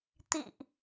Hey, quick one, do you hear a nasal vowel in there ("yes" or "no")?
no